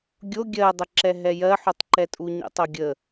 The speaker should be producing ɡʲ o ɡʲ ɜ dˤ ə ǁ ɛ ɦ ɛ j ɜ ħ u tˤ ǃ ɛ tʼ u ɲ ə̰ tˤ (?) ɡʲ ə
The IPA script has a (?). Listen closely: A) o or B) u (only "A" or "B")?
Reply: A